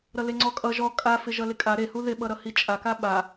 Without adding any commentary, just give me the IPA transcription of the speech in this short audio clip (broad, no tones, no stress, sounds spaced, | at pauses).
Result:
ɾ ʌ l e ŋ͡ǀ ɔ kʼ ʌ ʒ ɔ kʼ a f ɪ ʒ ʌ l ɪ kʼ a ɾ e h u ð ɪ ɓ ʌ ɾ ʌ h i t͡ʃʼ a k a ɓ a